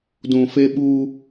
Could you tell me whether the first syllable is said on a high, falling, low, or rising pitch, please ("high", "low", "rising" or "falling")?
low